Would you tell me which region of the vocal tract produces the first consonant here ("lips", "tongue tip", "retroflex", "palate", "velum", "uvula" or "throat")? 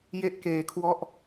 palate